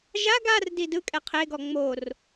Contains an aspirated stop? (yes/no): yes